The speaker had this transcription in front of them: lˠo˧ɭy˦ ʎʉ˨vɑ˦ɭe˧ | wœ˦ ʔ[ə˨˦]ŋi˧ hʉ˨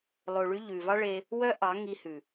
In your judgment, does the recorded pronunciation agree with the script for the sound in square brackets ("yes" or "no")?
no